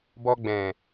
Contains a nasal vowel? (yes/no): yes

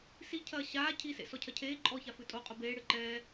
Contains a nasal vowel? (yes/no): no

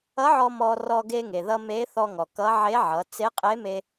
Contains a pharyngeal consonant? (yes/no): yes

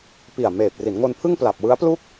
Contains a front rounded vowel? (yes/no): no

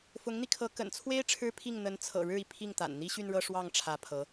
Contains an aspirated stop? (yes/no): yes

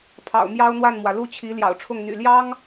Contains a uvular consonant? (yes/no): no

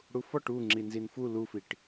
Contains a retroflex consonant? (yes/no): yes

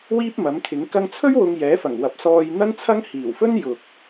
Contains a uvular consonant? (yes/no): no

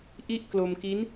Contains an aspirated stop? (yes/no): no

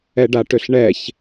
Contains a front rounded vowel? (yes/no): yes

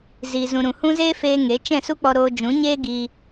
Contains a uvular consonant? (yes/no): no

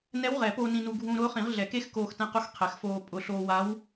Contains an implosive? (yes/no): no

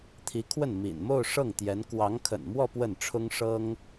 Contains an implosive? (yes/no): no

